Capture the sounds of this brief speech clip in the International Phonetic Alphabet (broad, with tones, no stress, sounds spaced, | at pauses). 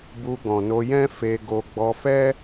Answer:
b u˧ ɡ ɔ̃˨ n o˧ j ɛ̃˦ f e˧ ɡ o˧ ɡ͡b ɔ˧ f ɛ˦